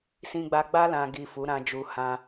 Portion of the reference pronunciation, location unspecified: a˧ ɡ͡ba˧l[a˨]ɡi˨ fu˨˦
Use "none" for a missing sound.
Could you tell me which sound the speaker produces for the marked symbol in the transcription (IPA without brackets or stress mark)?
ã˨